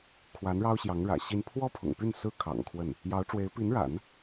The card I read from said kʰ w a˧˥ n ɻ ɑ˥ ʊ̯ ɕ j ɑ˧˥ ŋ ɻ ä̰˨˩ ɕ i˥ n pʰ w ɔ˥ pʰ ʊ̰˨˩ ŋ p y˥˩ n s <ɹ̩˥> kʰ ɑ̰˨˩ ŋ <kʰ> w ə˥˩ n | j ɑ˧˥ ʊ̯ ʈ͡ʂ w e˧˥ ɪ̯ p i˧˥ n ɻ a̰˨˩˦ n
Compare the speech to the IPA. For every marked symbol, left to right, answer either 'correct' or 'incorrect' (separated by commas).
correct, correct